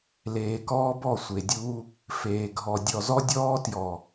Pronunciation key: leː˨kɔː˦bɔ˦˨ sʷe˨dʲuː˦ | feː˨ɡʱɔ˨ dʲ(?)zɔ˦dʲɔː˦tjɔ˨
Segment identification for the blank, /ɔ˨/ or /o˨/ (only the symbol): ɔ˨